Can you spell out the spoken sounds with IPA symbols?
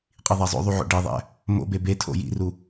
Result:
qʼiðˤæzˤo̰ðˤu ʕo̰ɖeðˤæ̰ | mo̰be betʰo̰ jḭru

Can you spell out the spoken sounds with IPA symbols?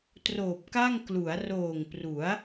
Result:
troː˨˩p̚ka˥˩ŋ klu˩˦a̯roː˨˩ŋpru˩˦a̯

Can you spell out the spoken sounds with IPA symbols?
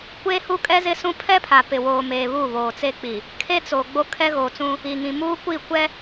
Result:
kʷeː˦hu˦kʼɛ˦ zɪ˦sũ˦ pʰɛ˦pʰa˨pɪ˨ woː˨meː˨ βu˦˨ βoː˨t͡se˦k͡pi˨ | kʰe˦t͡so˨ɡ͡bo˦ kʰɛ˦ɣoː˨t͡sũ˦ | i˨ ŋĩ˨muː˦kʷi˦˨ kʷɛ˦

